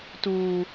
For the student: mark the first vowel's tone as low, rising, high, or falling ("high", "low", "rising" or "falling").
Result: low